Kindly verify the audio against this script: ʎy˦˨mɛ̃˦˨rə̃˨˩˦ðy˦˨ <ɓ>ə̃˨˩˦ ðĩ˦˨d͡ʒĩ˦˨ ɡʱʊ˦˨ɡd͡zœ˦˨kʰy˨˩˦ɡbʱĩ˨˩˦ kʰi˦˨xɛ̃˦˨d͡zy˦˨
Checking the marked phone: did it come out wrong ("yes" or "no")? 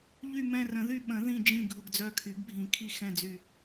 no